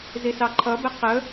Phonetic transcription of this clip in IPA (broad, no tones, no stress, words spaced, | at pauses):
zisɑǃʰʌbɛ qə